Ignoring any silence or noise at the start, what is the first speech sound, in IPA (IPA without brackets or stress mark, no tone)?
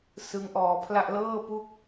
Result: s